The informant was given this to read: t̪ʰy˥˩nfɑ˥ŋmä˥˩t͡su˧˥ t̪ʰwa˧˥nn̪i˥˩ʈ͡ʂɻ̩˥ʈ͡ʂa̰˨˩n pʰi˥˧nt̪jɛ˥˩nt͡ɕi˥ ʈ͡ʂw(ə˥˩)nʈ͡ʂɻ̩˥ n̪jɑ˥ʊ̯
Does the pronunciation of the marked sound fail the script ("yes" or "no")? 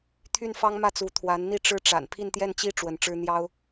yes